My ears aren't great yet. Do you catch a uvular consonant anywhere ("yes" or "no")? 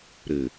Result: no